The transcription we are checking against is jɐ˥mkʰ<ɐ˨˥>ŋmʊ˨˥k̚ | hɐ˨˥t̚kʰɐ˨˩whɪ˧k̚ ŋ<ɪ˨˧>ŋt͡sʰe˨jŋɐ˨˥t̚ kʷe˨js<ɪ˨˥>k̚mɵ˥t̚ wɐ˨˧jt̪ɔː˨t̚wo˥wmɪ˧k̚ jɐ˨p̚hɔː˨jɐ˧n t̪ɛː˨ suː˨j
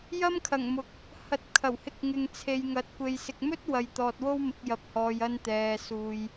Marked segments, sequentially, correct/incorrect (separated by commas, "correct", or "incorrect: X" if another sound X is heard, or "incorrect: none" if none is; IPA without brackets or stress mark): incorrect: ɐ˨˩, incorrect: ɪ˨, incorrect: ɪ˨